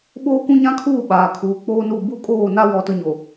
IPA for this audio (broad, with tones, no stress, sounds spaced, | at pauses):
ɓ oː˦ kʷ ũ˦ ɲ ã˦ kʰ uː˦˨ ɓ aː˨ kʰ uː˨ k͡p oː˦ n u˦˨ b u˦ kʼ oː˦˨ n a˦ w ɔ˦ t ʊ˦ ɲ o˨